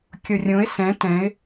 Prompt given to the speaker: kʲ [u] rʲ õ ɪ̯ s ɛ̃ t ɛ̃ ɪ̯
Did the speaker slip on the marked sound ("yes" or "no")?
yes